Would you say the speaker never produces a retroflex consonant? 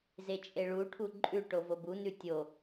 no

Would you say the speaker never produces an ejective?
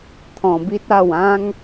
yes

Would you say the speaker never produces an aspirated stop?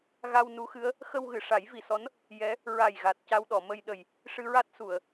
yes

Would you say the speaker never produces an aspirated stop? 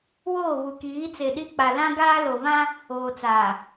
yes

